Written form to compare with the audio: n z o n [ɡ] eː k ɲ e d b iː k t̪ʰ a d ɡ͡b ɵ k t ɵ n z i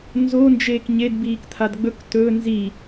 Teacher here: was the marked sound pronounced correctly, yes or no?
no